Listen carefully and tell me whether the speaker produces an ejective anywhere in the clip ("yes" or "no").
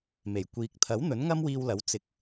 no